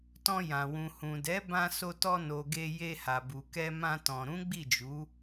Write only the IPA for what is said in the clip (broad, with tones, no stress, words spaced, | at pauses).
tɔ̃˧jã˨wũ˨hũ˨ dɛ˨˦ bã˧so˧tɔ˧no˨ ɡe˧je˧ha˨bu˨ kɛ˧mã˧tɔ̃˨ ɾũ˨˦ɡ͡bi˦˨d͡ʒu˨˦